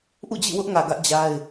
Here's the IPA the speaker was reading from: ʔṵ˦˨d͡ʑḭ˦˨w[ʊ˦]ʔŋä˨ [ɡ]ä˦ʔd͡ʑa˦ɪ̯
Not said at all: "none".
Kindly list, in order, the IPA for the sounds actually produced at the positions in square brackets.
ʊ˦, ɡ

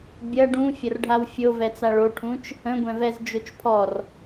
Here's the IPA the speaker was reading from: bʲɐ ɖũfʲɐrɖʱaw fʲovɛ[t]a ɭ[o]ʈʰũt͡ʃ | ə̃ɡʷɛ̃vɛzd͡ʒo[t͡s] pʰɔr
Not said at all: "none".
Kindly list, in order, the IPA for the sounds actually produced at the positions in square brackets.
t͡s, o, t͡ʃ

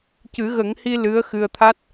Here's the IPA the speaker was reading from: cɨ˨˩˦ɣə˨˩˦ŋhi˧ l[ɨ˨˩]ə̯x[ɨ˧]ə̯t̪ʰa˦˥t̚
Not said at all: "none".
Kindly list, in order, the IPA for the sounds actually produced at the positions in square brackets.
ɨ˧˥, ɨ˧

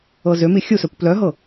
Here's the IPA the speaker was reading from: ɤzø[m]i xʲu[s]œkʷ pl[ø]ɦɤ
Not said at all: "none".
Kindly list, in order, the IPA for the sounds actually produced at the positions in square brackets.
m, s, œ

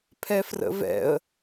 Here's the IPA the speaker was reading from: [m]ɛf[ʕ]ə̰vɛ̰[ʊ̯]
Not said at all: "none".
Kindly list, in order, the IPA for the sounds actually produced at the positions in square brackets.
pʰ, r, ə̯

